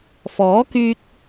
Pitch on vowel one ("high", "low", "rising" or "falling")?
rising